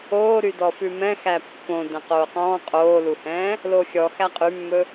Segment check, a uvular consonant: present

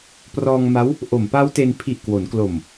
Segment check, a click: absent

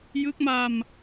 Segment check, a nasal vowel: absent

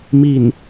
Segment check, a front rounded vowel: absent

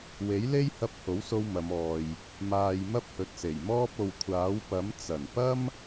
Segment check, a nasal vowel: absent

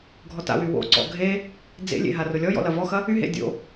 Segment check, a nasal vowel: absent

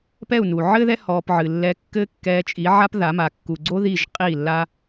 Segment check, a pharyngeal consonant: present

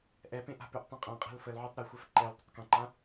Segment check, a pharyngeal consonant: present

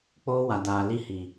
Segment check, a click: absent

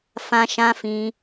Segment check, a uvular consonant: absent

